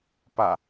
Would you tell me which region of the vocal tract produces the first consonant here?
lips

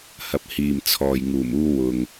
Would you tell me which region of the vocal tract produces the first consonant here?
throat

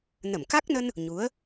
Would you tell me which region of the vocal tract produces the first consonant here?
tongue tip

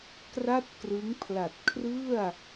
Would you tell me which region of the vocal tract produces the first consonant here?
velum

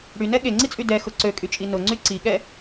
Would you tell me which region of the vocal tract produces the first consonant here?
retroflex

